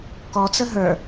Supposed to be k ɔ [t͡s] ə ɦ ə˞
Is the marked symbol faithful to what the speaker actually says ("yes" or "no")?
yes